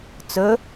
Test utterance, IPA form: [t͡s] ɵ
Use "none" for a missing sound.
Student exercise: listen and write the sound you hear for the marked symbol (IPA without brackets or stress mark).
t͡s